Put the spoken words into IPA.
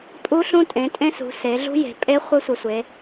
pʼ u˦˥ ɬ ũ˦˥ tʼ ẽ˩˧ tʼ ẽ˦˥ s ṳ˩˧ s e˩˧ ɮ ṳ˦˥ j e̤˩˧ pʼ e˦˥ χʷ ɘ˦˥ sʷ ɘ˩˧ sʷ e˩˧

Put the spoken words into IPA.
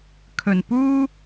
kʰ ɵ˨˩ n p uː˥

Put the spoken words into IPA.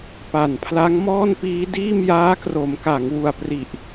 p a˨˩ n pʰ l a˦˥ ŋ m ɔː˥˩ n p iː˦˥ d iː˥˩ m j aː˦˥ k r o˩˦ m k a˩˦ ŋ w u˨˩ a̯ p r i˨˩ ʔ

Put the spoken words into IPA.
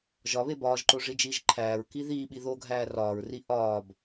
ʒ ɒ β e b ɒː ʒ ǃ o ʐ i d͡ʒ iː ʒ ǃʰ æː ɹ k i ð iː ɓ i ð o ɡʱ æː r ɒː ɹ r i ʔ ɒː b

